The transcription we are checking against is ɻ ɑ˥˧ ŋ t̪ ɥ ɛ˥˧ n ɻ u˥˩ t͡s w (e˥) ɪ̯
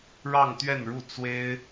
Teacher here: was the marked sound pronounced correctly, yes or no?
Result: yes